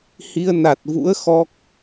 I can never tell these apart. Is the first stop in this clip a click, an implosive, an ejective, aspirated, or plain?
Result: plain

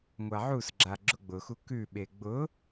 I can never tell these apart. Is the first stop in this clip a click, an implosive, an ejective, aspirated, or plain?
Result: click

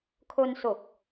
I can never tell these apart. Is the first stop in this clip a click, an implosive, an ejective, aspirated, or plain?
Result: aspirated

